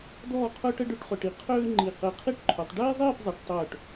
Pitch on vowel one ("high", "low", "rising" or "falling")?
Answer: falling